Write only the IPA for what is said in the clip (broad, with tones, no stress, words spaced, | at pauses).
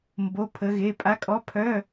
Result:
mbo˧˥˧pʰə˧˥ɣe˧˥˧ pʼa˧˥kʼɔ˧˥pʰœ˧˥˧